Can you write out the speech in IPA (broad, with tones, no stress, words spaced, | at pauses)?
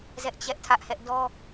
zɛ˦ʔt͡ɕɛ˦ʔtʰä˦ʔhɛ˦ʔ dɔ˦